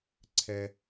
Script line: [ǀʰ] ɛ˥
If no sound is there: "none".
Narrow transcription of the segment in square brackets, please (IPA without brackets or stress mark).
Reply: ǀʰ